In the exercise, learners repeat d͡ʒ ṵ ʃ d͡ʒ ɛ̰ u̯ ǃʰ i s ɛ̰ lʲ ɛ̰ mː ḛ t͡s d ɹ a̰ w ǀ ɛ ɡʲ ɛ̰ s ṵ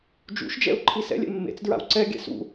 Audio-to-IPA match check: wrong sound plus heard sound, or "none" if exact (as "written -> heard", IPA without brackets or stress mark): none